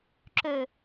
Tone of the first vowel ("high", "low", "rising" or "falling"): low